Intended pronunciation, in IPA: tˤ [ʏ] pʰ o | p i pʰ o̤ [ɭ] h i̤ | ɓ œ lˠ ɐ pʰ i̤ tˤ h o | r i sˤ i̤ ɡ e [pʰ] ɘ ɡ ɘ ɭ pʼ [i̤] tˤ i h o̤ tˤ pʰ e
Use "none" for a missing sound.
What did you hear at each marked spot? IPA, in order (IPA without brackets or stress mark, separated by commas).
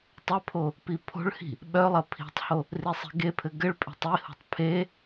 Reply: ʏ, ɭ, pʰ, e̤